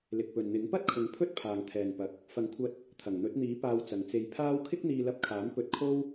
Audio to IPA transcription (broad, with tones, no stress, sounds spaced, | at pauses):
l ɪ˨ k̚ p ɵ˨ n n̪ ɪ˨˥ ŋ p ɐ˥ t̚ kʰ ʊ˨˥ ŋ pʰ ɵ˥ t̚ pʰ aː˨ ŋ t̪ʰ ɛː˨ n p ɐ˨ k̚ | f ɐ˨˥ ŋ kʷʰ ɐ˧ t̚ | t̪ʰ ɐ˨˩ ŋ n̪ ɵ˨˥ t̚ n̪ iː˨˥ p aː˧ w t͡s ɐ˨ ŋ t͡s e˧ j pʰ aː˥ w kʰ ɪ˥ k̚ n̪ iː˧ l ɐ˧ p̚ kʰ aː˨˥ m p ɵ˧ t̚ kʰ o˥ w